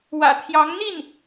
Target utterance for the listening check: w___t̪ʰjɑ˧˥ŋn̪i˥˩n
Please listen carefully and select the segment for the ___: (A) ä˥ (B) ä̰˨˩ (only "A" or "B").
B